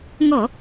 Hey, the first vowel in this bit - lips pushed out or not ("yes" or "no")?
yes